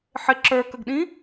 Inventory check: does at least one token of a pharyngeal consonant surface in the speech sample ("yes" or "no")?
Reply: yes